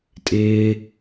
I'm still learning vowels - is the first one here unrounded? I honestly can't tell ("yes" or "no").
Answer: yes